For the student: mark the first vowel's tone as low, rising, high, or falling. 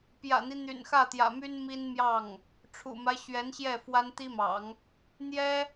low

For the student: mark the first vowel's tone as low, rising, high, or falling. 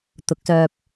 rising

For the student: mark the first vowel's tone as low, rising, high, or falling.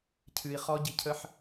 low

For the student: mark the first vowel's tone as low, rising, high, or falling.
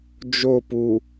falling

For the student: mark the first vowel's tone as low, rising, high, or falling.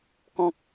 high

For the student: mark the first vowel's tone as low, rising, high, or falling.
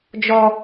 high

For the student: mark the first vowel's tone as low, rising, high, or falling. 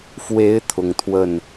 rising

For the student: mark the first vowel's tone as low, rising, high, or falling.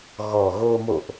low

